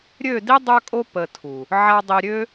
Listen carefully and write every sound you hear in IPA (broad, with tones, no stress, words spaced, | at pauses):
ɾʲø˦˨di˦ dˤœ˦kʼo˦ pə˧tʰu˨ | ʕa˦ dˤi˧ɾʲø˦